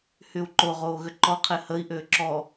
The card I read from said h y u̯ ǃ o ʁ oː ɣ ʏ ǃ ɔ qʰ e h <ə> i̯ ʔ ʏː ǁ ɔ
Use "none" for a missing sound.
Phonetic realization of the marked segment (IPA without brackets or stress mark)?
ə